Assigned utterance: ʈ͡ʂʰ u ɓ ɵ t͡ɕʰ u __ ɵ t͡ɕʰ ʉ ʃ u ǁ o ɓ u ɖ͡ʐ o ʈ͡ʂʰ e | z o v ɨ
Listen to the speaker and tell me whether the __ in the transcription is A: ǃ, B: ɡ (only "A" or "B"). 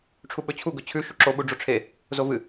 B